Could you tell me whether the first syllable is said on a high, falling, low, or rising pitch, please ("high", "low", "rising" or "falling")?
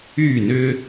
falling